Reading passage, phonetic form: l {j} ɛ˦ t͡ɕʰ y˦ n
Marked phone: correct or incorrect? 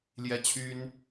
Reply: correct